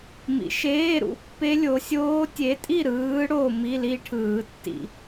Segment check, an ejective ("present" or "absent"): present